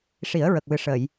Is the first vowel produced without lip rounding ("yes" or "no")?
yes